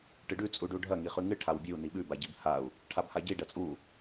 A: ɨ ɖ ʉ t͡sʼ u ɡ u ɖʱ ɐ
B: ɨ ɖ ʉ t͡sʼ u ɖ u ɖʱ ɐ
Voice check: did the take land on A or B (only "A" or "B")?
B